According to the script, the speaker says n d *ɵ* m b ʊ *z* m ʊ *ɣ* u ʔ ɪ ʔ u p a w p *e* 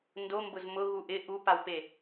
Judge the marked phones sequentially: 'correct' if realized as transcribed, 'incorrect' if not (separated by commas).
incorrect, correct, correct, correct